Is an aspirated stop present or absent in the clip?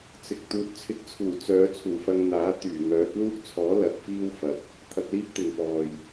present